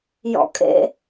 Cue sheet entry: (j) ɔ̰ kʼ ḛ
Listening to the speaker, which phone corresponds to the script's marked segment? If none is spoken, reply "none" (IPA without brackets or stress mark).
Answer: j